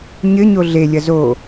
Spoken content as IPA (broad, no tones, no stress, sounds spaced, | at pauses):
ɲ ɘ ɲ o ɮ e lʲ ɐ z o